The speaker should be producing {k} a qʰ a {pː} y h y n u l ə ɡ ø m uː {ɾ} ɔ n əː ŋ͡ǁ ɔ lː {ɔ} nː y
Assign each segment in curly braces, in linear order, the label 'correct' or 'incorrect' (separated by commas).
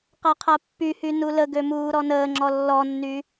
incorrect, correct, correct, correct